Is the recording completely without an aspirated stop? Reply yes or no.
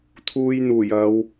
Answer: no